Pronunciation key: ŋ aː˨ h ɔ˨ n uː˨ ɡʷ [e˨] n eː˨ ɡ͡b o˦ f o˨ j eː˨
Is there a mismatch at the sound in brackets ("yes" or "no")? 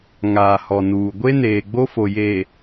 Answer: yes